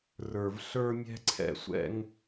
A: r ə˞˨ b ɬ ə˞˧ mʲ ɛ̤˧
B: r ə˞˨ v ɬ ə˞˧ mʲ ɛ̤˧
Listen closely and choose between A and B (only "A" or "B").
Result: B